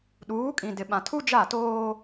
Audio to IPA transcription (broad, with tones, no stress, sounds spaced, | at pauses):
ɗ uː˨˦ kʼ ĩ˨ d ɪ˨ ɓ ã˨ tʰ u˦ d͡ʒ a˦˨ t oː˦